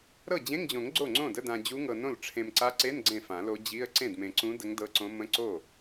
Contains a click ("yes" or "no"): yes